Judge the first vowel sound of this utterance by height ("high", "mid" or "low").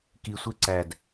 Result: high